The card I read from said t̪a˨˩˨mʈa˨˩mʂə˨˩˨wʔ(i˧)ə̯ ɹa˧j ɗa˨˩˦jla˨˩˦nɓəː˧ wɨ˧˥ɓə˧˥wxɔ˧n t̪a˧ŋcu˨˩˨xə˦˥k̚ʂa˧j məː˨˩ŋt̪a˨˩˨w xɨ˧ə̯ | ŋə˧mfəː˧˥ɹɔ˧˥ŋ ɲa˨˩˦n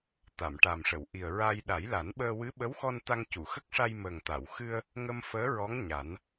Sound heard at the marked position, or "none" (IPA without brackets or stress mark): i˨˩